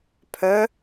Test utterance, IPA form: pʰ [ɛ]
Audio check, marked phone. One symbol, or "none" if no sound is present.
œ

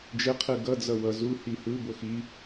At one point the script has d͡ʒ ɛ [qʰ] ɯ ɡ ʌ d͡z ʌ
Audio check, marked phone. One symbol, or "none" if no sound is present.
qʰ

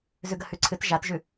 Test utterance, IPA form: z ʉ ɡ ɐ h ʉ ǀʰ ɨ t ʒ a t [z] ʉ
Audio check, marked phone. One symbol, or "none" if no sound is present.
ʒ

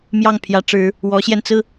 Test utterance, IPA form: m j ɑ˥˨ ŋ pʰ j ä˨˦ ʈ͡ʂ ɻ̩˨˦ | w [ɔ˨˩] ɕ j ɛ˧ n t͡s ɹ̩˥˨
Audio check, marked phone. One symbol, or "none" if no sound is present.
ɔ˨˦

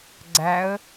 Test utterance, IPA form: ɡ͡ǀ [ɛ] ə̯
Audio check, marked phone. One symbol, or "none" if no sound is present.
æ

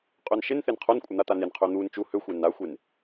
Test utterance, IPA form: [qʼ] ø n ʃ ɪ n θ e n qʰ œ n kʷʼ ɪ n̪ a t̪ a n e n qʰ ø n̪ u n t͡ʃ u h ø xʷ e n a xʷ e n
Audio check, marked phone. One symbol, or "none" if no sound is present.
qʼ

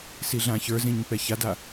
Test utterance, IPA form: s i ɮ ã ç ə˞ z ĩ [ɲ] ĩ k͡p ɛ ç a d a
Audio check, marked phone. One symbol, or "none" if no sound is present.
ɲ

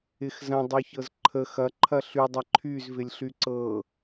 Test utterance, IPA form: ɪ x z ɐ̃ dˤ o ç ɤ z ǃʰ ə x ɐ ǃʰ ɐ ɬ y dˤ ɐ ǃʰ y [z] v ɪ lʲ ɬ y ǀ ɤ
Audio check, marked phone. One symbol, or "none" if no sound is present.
z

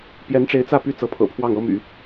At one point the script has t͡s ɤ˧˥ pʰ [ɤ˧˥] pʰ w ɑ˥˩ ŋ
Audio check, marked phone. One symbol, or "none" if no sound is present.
ɤ̰˨˩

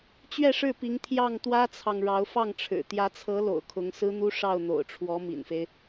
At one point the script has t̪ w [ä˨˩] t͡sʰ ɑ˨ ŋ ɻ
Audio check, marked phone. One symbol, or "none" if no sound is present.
ä˥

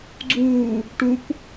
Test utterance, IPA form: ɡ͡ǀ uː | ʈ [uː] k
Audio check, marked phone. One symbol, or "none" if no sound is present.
u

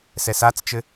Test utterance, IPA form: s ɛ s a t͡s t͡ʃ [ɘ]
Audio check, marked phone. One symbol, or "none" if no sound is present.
ɘ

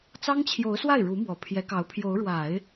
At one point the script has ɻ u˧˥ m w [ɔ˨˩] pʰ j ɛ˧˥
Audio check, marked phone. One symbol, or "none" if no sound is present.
ɔ˨˩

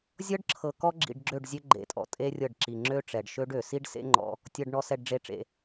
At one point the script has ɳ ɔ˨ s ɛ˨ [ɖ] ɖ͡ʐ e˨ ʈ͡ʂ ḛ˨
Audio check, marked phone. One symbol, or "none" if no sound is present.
ɖ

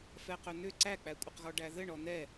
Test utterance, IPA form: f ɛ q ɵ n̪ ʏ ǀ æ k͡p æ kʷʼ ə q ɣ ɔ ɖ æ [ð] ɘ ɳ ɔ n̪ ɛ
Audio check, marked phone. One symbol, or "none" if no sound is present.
ð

